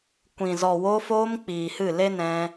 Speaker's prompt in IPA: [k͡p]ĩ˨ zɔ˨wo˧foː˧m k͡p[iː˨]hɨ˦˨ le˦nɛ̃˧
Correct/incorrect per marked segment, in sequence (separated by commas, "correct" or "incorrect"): incorrect, correct